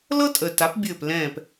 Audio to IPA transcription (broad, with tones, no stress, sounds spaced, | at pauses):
l ɤ˥ tʼ ə˨ t a˨˥ p bʲ ɘː˦˨ p l ɛ̃ː˦˨ p